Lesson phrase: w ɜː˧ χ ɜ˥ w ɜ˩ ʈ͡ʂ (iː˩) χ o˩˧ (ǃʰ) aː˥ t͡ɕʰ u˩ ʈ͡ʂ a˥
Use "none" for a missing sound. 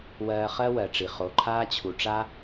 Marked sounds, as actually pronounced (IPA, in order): i˩, ǃʰ

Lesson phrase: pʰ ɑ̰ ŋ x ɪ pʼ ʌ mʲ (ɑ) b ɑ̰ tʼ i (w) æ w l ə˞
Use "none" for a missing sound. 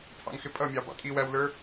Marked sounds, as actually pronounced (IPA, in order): ɑ, w

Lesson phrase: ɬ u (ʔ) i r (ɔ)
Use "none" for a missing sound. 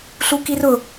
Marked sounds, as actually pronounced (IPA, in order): k, ʊ

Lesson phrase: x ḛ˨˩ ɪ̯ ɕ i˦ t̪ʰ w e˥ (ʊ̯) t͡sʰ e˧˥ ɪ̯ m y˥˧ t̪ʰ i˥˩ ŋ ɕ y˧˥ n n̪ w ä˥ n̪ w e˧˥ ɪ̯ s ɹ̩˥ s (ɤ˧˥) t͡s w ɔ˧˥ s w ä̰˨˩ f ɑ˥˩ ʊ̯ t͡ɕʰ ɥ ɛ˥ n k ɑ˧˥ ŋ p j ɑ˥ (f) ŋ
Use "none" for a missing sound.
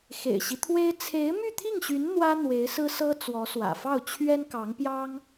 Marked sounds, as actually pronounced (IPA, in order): ɪ̯, ɤ˥, none

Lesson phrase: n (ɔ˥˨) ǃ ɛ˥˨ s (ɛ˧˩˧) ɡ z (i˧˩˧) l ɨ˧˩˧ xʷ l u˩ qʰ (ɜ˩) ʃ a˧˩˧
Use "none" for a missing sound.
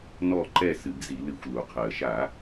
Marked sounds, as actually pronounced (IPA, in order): ɔ˥˨, ɨ˧˩˧, i˧˩˧, ɜ˩

